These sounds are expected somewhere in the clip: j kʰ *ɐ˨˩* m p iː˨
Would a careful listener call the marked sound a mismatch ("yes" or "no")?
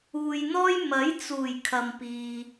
yes